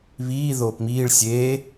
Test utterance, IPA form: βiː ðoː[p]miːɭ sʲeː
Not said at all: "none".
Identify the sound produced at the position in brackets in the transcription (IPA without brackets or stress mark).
p